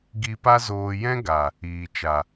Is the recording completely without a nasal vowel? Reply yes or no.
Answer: no